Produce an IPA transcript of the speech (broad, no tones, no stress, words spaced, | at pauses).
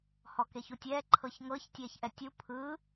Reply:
hɔkeçutʲɛː ǃʰɤçŋɤç tʲɛːçʔɛtʲu pʰɯ